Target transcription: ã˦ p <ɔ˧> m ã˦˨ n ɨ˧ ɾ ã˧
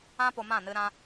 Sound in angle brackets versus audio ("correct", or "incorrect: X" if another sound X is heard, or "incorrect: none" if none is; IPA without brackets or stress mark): incorrect: o˧